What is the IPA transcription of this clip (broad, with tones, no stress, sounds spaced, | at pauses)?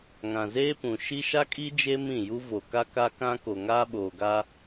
ŋ ã˨ z eː˦ p ũ˨ ʃ i˦ ʃ a˦ kʼ i˦ d͡ʒ e˦ m ĩ˦˨ j u˦ v o˨ k a˦ k a˦ k ã˦ k o˨ ŋ aː˦ ɓ oː˨ ɡ a˦